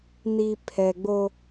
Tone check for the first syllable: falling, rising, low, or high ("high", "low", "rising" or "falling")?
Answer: low